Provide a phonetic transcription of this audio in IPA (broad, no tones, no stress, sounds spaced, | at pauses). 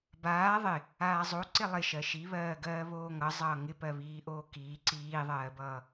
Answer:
b aː ðˤ ɪ | aː zˤ o ǀ ɪ lˠ ɪ ʃ ɜ ʃ i β ɜː ɡ ɜː β oː ŋ ʌ zˤ ʌː ŋ ɪ p ɜ β iː ʔ oː k iː ǀ iː ðˤ ɜː b ʌː